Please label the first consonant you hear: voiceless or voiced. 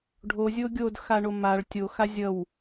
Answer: voiced